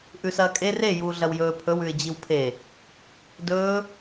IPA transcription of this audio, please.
ʔʉsɐːkʼe re juːɮɐwjɵː pʰɵw ʉɪ̯d͡ʑiwpʰe | dɵː

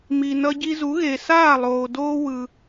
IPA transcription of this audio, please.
mi˩ nʌ˧ɟi˧zu˩˥ɣe˩ saː˥˩ lˠoː˩doː˧ wɯ˩

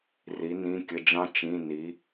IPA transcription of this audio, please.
ri˧˥nĩ˧˥˧kʲə˧˥˧d͡ʒɑ̃˥ t͡ʃĩ˧˥˧ni˧˥

